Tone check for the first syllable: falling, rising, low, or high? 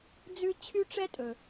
high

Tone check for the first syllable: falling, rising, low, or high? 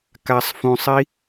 low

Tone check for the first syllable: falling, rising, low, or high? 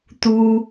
high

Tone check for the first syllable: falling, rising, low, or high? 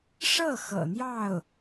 falling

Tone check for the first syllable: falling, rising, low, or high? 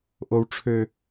high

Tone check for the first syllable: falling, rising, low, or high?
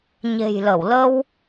low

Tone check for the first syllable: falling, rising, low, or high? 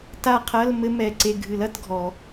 falling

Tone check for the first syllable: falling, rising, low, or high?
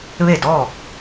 falling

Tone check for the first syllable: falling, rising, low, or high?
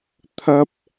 high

